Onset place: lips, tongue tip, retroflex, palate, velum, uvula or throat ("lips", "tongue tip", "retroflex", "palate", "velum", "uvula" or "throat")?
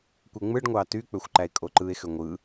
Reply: velum